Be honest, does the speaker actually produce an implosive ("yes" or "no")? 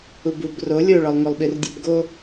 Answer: yes